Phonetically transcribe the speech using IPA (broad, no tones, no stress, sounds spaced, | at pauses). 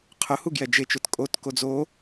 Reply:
qʰ ʊ h u ɡ j ɛ d͡ʒ e t͡ʃ ʊ t kʼ o t k o d͡z o